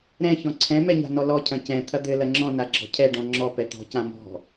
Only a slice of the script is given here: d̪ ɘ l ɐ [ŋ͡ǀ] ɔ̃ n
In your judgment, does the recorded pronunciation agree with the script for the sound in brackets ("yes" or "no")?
no